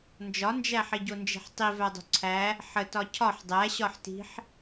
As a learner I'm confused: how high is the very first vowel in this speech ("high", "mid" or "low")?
low